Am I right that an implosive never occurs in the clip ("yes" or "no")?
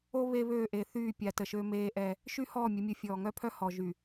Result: yes